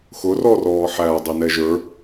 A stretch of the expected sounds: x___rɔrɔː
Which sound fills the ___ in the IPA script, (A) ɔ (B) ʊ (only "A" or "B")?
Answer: B